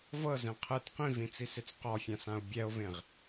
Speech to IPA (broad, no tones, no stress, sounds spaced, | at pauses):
v ɤ z ẽ qʰ ɯ t q ĩ v ĩ t͡s i s e t͡s q ɔ fʲ ã s ã o̯ bʲ ɛ o̯ v ẽ ʁ